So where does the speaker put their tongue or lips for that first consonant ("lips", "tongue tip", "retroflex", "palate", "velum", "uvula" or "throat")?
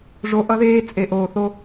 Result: retroflex